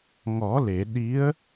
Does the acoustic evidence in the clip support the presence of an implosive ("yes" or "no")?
yes